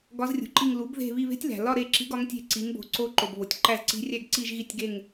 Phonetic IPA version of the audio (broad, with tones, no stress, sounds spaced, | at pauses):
ɡ ɒ˧˥ z rʲ ṳ˩ ǃ i˦˨ ŋ l u˩˥ b ð e̤˦˨ β i˦˨ β e̤˧˥ tʲ l æ̤˩ l ɒ˦˨ ɾ e˦˨ ǁ i̤˧˥ ɡ ɒ˧˥ ŋ tʲ e̤˦˨ ǀ i˩˥ ŋ b o̤˩˥ ǀ o˧˥ ǃ o˩ b β o˩ tʲ ǃ æ˦˨ z ǀ i̤˧˥ rʲ æ˦˨ ɡ ǀ i˦˨ ʒ ɣ i˦˨ tʲ ɡ e˦˨ ŋ